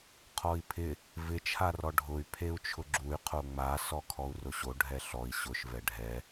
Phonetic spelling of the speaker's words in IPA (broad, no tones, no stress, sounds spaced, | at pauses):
qʰ ɔ i̯ pʰ ɪ | v ɪ t͡ʃʰ a r ɔ ɖʱ ʊ y̯ pʰ e u̯ t͡ʃʰ ʊ ɡ͡ǁ u y̯ qʰ o ŋ͡m a s ɔ kʰ ɔ u̯ r ʊ ɕ o ɖʱ ɛ ɬ ɔ i̯ ɕ ʊ ʃ v ɛ ɖʱ ɛ